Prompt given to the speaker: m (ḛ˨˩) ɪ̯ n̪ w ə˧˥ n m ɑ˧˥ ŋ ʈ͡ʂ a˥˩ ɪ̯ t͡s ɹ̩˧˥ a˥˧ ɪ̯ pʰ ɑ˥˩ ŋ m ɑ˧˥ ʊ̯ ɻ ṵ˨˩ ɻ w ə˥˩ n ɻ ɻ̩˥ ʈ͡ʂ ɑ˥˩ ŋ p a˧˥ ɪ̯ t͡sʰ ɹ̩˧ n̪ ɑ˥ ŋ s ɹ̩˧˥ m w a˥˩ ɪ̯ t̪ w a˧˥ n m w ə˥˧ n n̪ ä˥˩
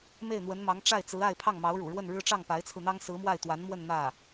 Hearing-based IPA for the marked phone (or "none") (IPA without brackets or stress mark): e˥˩